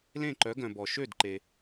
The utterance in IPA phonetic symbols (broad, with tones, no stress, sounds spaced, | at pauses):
l ẽ˥˩ ǃ œ˩˥ ɡ œ̃˩ b ɔ˩ ʃ ø˥˩ d ǃ e˩